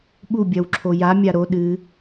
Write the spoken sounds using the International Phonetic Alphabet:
ɓu bʲɐwǁʰoja mʲaɾo ɗɨ

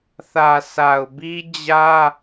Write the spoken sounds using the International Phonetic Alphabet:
θä˨sʰa˨ʊ̯bi˦ d͡ʑä˦

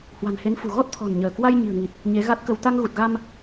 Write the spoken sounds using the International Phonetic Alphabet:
hwa̤˨˩nhe˨˦nfṳ˨˩ ɣɔ˦˥t̚t̪ʰɔ̤˨˩nɲəː˧˩kwa˧j ɲi̤˨˩ə̯ŋi˨˩t̚ | ɲe˨˦ɣa˦˥t̚kə˧w t̪a˧ŋɣu˨˩t̚ɣa˧m

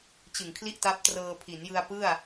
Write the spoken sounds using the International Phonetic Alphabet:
t͡ɕɯ˨˩ŋkʰli˥˩ʔta˦˥p̚ trɤː˧pʰi˩˦njɯ˧a̯ pɯ˥˩a̯

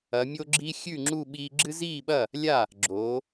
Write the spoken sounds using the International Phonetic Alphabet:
ɐ˨˦mʲo˦ɡ͡ǁi˦ xʲʉ˥˨ŋ͡ǁu˥˨ɓiː˦ ɡ͡ǁɨ˦ziː˥˨ɓɐ˥˨ | lʲa˥˨ | ɡ͡ǁoː˨˦

